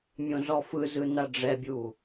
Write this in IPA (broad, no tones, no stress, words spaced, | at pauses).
mʲõzɔfɯzɯ naɖ͡ʐɛbʲu